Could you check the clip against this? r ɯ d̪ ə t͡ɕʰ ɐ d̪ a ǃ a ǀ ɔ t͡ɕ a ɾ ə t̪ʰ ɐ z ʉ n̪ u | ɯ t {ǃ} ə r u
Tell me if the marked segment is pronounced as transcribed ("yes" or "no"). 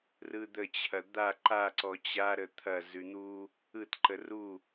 yes